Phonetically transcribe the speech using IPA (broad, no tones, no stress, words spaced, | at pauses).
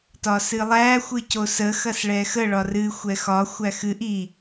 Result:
tɒsɨlˠæ xʷɨcosə xɐsɭɛxə ɭɒrɨ xʷɛxɒ xʷæxɨʔ i